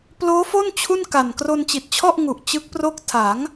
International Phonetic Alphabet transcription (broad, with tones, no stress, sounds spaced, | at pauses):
p l oː˦˥ f o˥˩ n t͡ɕʰ u˥˩ n k a˨˩ n k r o˧ n t͡ɕ i˨˩ t̚ t͡ɕʰ ɔ˥˩ ʔ ŋ u˨˩ ʔ t͡ɕ ɯ˦˥ k̚ p r o˥˩ k̚ tʰ a˩˦ ŋ